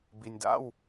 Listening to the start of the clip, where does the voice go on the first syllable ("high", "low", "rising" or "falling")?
low